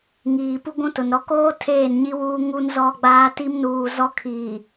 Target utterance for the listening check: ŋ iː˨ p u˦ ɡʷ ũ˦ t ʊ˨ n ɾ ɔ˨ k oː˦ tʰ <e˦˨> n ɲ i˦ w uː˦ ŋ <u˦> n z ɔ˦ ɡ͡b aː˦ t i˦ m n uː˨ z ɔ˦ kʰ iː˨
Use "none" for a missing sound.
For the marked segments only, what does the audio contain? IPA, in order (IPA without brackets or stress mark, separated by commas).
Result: eː˦˨, u˦